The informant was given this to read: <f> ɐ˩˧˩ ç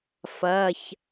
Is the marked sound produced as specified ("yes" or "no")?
yes